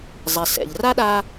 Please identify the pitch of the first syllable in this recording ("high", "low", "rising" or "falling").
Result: low